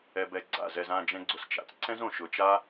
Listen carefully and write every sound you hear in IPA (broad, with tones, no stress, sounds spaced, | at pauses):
ɛ˧ b ɛ˧ ɡ͡ǀ a̰˦˨ z ɛ˧ z ã˦˨ d͡ʒ ɛ̃˧ ɡ͡ǀ ʊ˨ s t͡ʃ a̰˨ t͡s ǀ ɛ̃˦ z õ˨ ʃ ʊ˨ t͡ʃ a˦